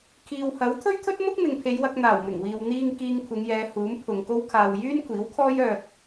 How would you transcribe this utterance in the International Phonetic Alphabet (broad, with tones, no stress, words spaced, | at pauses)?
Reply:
kʰiː˨whɐ˨˥w t̪ʰɵ˥ɥt̪ʰɵ˥t̚mʊ˥k̚ mɪ˨ŋpʰe˨˧jwɐ˧k̚ n̪aː˨˩wmɪ˨˩ŋwiː˨w n̪iː˧ŋ kiː˧ŋkʷʰɪ˨˧ŋjɛː˨˧ huː˨˥mpʰʊ˨ŋko˥wkʰaː˧w jyː˥nkʷʰiː˨˥wkʰɔː˥j œː˧k̚